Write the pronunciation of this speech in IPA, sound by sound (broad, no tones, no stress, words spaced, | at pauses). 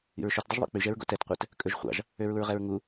ḭɹʃɵtdˤɵʒ ðˤo̰k͡pyʒ ɛɹɡo̰tɛtqʷɛt | kʼɵʒχʷɑ̰ʒ | øɹuɹʁɛɹŋu